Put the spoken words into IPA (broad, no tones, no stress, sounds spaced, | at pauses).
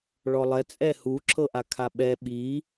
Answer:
ɭ ɔ lˠ ɛ t͡sʼ ɛ h u ǁ ɤ ʔ a kʰ a ɓ ɛ ɓ i